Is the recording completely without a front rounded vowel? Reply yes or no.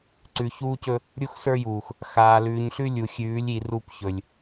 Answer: yes